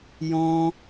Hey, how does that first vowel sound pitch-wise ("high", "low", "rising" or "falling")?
high